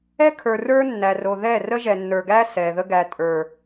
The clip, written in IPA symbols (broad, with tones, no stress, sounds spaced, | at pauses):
ɛ˦ kʰ ə˞˨ r ə˞˦ nː æ˨ r o˨ ð ɛ˦˨ r ə˦ ʒ ɛ˨ nː ə˞˨ ɡ æ˦ s ɛ˨ ð ə˦ ɡ æ˨ tʼ ə˞˨